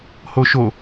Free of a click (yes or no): yes